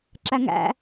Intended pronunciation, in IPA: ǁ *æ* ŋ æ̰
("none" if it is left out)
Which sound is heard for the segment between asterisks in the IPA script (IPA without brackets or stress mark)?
æ